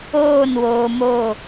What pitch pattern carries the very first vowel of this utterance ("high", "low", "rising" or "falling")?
falling